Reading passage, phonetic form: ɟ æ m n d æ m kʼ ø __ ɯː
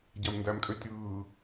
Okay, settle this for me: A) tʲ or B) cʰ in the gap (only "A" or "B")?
A